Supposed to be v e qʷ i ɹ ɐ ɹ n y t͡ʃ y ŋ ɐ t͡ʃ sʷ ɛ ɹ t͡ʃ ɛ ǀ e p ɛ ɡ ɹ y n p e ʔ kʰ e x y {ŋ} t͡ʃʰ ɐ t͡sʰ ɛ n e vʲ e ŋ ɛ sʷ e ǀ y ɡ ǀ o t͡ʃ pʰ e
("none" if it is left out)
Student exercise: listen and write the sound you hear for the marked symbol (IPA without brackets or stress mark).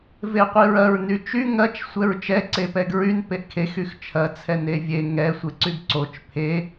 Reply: x